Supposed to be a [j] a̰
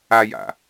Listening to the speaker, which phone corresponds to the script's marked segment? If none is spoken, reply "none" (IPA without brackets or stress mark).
j